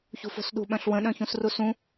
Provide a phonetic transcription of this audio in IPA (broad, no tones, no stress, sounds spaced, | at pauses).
ç ṳ f o̤ s ɗ ṳ ɓ œ̃ ɬ w ə̃ ɗ œ̃ ç ũ s r u s ũ